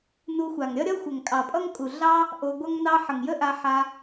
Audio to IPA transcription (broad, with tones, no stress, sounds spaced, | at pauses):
n u˧ xʷ a˨ ŋ ɾʲ ʌ˦ ɾʲ ʌ˦ xʷ ə˨ ŋ kʼ ɑ˨ pʼ ʌ˦ ŋ kʼ u˨ ɮ ɑ˦ | ʔ o˧ ɡʷ ʌ˦ ŋ n ɑ˦ ħ ə˨ ŋ j ə˦ ʔ a˧ ħ a˧